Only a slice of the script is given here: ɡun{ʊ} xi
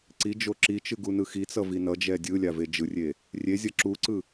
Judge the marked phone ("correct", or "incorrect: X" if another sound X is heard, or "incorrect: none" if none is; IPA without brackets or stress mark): incorrect: ɯ